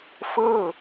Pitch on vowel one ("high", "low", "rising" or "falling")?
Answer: falling